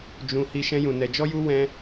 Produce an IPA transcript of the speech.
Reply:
d͡ʒ ũ˧ h i˦ ʃ ɛ̃˦ j ũ˧ n ɛ˧ d͡ʒ ɔ˦ j u˦ w ɛ̃˦

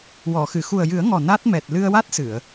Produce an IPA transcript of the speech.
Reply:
w ɔ˨˩˨ x ɨ˨˩˨ x u˨˩ ə̯ j ɨ˨˩˦ ə̯ ŋ ɔ˨˩ n a˦˥ t̚ m ɛ˨˩ t̚ l ɨ˧ ə̯ w a˦˥ t̚ s ɨ˨˩˨ ə̯

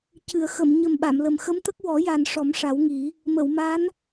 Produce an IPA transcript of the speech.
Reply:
c ɨ˨˩˨ ə̯ x ə˨˩˨ m ɲ ə˨˩ m ɓ a˨˩˨ m l ə˨˩ m x ə˧˥ m t̪ ə˦˥ k̚ w ɔ˨˩˦ j a˨˩ n ʂ ɔ˨˩˦ m ʂ a˨˩˦ w ŋ i˨˩˦ | m ə˨˩˨ w m a˧˥ n

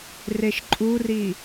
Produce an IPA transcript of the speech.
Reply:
r e ʃ ǃʼ u r i

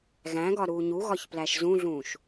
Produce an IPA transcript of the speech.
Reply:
ɣ æ̃ ɡ ɒ ɾ uː ɲ u ɣ ɒ ç p l æ ʃ z ũ ɮ ũː ʃ

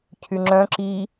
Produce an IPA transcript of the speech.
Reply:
cʰ y ŋ͡ǁ œ̃ ǁ i

